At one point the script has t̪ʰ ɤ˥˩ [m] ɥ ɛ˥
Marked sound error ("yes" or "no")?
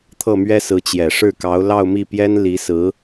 no